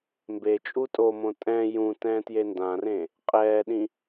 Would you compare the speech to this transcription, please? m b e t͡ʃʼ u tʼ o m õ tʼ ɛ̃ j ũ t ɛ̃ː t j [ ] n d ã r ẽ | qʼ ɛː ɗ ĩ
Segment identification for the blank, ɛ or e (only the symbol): e